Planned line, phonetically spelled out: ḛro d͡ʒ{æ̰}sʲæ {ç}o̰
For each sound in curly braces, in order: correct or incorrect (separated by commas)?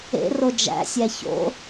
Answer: correct, correct